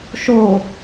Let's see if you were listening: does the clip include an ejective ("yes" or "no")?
no